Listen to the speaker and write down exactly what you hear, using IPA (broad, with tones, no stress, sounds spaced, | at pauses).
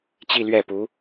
t͡ɕ i˥˧ l ɥ ɛ˥˩ p u˧˥